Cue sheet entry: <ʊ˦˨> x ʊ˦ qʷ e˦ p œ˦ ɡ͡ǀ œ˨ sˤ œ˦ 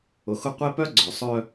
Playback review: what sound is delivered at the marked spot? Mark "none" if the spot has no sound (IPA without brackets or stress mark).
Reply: ʊ˨